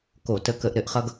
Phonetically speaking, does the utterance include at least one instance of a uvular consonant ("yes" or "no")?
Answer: yes